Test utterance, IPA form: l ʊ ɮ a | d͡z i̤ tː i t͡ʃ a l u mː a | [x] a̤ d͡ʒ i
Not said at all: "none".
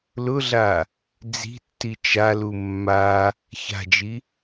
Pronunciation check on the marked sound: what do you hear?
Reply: ç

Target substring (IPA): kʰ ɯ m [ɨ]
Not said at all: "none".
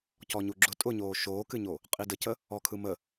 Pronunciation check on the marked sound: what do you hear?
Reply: ə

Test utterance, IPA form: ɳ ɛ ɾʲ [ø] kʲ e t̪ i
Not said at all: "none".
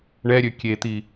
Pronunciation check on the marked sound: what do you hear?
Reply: ø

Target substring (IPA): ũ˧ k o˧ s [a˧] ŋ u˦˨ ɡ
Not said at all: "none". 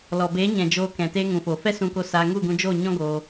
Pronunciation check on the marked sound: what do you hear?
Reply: a˧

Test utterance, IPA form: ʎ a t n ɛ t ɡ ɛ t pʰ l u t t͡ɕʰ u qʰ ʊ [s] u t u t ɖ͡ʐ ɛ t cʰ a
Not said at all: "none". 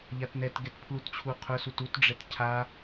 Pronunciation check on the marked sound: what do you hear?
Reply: s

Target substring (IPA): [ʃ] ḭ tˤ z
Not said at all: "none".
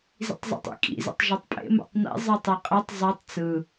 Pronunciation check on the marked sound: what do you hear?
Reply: z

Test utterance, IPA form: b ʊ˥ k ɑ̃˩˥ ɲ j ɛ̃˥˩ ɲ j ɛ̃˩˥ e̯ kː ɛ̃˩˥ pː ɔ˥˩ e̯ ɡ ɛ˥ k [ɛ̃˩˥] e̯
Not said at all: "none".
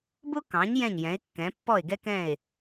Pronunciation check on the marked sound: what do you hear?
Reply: ɛ̃˥˩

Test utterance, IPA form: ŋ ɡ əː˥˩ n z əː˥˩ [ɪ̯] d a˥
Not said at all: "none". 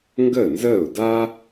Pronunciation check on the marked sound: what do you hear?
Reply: ʊ̯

